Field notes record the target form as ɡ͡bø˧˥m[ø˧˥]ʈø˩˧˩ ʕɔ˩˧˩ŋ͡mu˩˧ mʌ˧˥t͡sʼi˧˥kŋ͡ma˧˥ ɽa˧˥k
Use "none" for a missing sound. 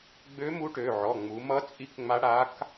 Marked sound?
u˧˥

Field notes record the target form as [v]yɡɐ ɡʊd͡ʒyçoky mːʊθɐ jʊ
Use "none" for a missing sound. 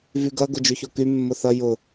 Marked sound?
v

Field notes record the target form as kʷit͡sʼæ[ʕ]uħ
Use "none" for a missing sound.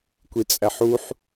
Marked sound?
ħ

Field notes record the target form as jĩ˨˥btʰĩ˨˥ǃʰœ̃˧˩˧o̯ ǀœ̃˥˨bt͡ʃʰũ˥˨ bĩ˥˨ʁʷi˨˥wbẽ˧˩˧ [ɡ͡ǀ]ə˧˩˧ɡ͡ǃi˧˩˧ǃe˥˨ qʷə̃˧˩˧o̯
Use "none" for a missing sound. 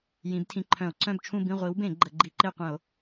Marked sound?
ɡ͡ǃ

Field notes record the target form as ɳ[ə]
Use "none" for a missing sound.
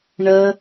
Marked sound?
ə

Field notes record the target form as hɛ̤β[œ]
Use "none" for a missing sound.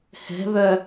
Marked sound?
œ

